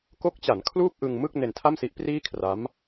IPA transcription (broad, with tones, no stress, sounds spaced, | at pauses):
k o˦˥ k̚ t͡ɕ a˩˦ n kʰ l uː˥˩ p̚ ʔ ɯ˧ ŋ m ɯ˥˩ k̚ n e˧ n tʰ a˥˩ m s i˦˥ ʔ p r iː˥˩ kʰ r a˦˥ m